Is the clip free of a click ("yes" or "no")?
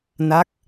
yes